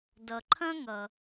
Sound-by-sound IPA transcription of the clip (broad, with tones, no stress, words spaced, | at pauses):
dʌ˩ǃʰɐ̃˥ŋʌ˩